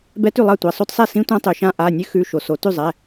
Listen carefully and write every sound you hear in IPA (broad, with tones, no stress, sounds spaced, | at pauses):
b ɛ˦˥ t ʉ˥˩ lˠ ɑ˥˩ tʷ ɛ˩˧˩ sˤ o˦˥ t sˤ ɛ˥˩ s ĩ˦˥ tʷ ã˦˥ tˤ ʉ˩ ʃ ã˦˥ ʔ a˩˧˩ nʲ ʉ˦˥ x ʉ˩˧˩ ʃ o˩ s o˩ t ʉ˥˩ zˤ ɛ˩˧˩